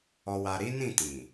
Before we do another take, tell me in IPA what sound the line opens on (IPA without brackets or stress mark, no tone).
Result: ɔ